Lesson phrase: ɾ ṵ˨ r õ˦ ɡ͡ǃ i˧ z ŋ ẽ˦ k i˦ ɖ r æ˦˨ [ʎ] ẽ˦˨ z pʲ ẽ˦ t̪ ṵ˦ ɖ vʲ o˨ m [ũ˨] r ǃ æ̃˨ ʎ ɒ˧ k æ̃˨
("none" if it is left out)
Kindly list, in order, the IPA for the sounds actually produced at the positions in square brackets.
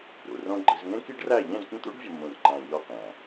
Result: ʎ, ũ˨

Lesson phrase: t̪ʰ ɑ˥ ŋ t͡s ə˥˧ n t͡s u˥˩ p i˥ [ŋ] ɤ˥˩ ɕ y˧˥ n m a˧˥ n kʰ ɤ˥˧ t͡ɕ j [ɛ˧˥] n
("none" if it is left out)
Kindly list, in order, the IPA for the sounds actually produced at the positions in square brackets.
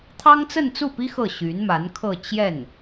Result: x, ɛ˥˩

